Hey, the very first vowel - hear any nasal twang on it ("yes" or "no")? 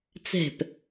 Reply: no